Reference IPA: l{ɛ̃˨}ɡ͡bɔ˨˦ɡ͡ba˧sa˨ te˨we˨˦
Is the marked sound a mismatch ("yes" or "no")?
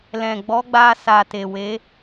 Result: no